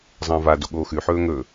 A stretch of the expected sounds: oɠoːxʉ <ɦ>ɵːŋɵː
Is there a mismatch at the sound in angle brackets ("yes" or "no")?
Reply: yes